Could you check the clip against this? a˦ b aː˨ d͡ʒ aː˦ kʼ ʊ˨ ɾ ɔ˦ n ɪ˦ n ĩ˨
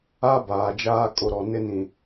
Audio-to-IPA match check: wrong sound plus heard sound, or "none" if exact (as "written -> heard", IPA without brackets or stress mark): ɔ˦ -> ɔ˨